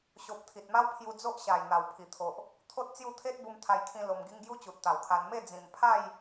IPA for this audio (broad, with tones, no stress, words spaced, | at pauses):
ɕo˨p̚ t̪ʰi˨t̚ma˦w pʰju˧d͡zo˦ʔɕa˨˩j n̪a˨˩wpʰi˨˩t̪ʰo˨ʔ | t̪ʰo˦t̚t͡sju˥˧ t̪ʰe˦t̚ bu˧mt̪ʰa˧jkʰĩ˧ lo˧mɡi˦ŋ ɡju˦t͡ɕu˨t̚ t̪a˨˩wkʰa˧n me˥˧ d͡zĩ˨˩mpʰa˥˧j